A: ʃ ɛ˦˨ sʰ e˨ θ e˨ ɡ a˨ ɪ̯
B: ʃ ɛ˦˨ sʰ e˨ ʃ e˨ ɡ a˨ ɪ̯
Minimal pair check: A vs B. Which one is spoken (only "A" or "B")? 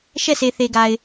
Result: A